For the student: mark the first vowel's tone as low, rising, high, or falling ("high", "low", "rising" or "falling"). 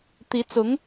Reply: rising